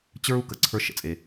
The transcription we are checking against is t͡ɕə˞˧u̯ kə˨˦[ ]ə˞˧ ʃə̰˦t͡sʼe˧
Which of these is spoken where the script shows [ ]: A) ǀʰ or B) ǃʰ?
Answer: A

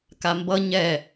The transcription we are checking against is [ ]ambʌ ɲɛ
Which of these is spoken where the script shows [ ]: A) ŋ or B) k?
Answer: B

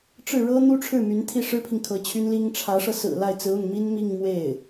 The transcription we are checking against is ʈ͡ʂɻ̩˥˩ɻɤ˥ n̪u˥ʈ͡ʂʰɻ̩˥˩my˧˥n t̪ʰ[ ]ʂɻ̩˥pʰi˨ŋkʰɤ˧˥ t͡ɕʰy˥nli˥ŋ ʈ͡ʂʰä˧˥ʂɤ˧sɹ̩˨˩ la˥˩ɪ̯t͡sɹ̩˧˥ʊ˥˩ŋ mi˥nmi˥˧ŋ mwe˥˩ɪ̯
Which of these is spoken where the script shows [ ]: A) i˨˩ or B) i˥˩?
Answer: B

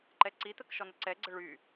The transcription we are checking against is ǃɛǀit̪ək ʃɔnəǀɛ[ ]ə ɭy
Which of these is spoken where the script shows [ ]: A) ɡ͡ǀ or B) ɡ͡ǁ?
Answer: A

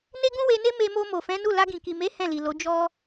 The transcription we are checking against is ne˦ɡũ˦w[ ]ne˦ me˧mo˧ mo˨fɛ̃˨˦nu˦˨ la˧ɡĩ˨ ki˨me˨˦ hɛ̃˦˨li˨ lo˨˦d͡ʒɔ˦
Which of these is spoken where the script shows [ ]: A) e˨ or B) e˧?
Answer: B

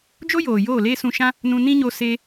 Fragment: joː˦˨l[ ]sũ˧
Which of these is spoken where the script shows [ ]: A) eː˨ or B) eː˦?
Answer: B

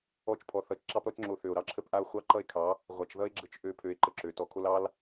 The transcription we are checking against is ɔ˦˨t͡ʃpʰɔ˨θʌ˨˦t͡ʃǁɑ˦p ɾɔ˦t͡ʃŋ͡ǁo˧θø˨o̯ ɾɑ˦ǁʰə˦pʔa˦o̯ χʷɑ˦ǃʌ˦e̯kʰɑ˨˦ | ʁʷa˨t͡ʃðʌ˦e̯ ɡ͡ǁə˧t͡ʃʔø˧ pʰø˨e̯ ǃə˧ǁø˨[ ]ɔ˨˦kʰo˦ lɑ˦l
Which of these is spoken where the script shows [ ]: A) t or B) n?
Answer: A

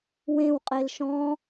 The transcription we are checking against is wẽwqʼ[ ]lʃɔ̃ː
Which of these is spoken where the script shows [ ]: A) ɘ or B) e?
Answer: B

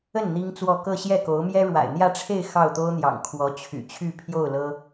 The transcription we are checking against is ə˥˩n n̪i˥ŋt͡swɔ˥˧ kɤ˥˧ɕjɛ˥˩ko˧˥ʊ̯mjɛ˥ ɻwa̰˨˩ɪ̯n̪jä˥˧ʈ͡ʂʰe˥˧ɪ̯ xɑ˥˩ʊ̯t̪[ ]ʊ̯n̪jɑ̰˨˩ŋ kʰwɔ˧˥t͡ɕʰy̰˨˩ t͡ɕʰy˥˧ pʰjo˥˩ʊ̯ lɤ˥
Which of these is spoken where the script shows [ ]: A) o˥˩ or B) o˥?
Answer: B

